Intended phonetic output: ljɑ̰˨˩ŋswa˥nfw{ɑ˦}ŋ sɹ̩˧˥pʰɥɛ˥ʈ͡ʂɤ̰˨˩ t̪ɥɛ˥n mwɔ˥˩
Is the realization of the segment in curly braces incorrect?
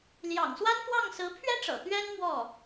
yes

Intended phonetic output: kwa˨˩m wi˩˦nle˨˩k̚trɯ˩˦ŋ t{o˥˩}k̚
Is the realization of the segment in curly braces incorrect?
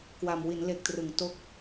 no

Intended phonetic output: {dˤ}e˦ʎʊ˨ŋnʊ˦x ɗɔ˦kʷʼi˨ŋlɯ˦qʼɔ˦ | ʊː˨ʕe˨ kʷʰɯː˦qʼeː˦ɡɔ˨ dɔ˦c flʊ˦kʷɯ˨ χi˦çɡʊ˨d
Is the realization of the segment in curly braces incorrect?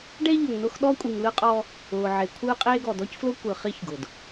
yes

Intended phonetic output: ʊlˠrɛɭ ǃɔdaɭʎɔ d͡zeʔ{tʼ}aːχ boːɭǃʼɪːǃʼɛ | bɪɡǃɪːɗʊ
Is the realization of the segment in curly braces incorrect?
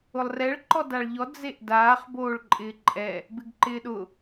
yes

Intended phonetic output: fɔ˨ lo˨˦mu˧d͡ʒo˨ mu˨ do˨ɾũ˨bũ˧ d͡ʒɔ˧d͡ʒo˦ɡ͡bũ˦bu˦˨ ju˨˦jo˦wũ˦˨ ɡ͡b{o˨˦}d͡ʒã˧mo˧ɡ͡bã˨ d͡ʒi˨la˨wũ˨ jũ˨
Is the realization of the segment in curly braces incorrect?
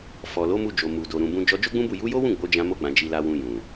no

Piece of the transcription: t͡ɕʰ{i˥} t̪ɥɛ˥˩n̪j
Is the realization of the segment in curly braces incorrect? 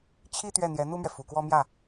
no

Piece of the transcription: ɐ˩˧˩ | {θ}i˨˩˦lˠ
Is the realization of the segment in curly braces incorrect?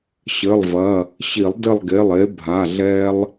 yes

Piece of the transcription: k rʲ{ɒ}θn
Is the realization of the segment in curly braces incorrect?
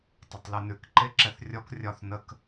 no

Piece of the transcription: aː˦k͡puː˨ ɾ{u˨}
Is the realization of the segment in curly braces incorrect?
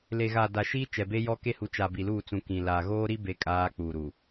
no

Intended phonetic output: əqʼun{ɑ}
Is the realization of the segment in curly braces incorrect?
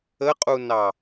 no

